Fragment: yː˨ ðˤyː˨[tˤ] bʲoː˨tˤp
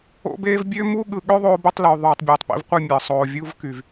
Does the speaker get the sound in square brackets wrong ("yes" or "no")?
no